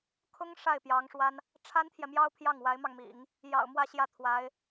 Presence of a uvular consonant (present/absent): absent